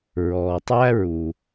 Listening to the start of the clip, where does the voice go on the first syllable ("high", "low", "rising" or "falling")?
low